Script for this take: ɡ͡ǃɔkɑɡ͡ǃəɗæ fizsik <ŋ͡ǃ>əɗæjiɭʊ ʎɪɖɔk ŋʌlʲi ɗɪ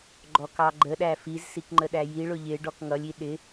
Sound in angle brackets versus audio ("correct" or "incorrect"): correct